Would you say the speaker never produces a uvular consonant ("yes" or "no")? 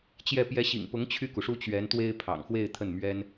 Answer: yes